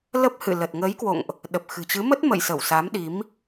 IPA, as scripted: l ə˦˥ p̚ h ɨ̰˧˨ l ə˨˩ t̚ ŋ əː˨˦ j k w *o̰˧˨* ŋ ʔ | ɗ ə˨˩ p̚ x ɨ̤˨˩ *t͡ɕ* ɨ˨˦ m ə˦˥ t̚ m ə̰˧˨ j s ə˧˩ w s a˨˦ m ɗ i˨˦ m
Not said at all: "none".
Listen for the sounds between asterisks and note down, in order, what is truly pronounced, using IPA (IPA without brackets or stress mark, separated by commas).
o̰˧˨, t͡ɕ